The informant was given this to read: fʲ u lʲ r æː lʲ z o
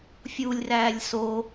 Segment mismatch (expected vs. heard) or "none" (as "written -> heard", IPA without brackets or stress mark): z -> s